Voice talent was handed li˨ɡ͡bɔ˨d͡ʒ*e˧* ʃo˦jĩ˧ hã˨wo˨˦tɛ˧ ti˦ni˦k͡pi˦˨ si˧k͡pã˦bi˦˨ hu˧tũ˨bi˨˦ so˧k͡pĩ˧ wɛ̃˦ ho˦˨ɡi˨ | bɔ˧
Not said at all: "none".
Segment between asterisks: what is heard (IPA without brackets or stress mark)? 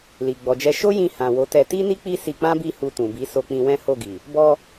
ɛ˧